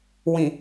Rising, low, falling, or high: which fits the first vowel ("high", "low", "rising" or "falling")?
low